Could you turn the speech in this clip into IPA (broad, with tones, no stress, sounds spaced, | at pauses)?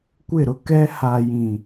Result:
kʷ ɪ˦˨ ɾ ʊ˦ k ɛ˦ h a˨ j ĩ˨